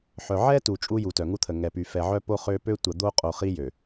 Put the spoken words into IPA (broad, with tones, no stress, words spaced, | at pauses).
ħœ˨ʕɛ˦tu˨ t͡ʃʼu˦ju˨tœ˨ ŋu˦t̪ʰə˨ ŋɛ˨py˨ fɛ˨ʕœ˦po˦ χø˦ pø˦tʷə˨d̪o˦qʼo˨ χi˦jø˨